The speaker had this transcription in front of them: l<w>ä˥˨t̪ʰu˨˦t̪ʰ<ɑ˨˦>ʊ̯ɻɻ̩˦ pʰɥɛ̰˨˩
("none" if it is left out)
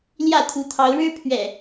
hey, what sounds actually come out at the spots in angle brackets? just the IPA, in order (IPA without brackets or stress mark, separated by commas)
j, ɑ˨˦